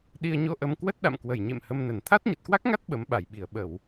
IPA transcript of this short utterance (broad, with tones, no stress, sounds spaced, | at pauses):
ɗ i˧ ə̯ ɲ o˧ ʔ ə˧ m k w ə˦˥ t̚ ɗ a̰˧˨ m k w ə˧˩ j ɲ ḛ˧˨ m h ə˧ m n ə˧˩ n t̪ʰ a˦˥ t̚ ɲ ə˨˩ t̚ k w a˦˥ k̚ ŋ a˦˥ t̚ ɓ ə˨˦ m ɓ a˧˩ j ɓ i˧˩ ə̯ ɓ ə˧˩˨ w